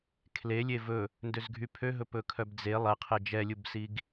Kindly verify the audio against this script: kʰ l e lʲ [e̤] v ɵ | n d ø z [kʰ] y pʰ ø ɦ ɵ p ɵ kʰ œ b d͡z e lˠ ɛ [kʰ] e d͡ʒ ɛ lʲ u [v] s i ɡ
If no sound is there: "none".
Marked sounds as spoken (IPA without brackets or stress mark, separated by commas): e, ɡʱ, qʰ, b